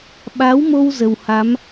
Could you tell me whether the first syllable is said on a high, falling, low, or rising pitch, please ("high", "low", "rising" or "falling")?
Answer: rising